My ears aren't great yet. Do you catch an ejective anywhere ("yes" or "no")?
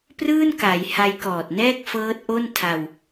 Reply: no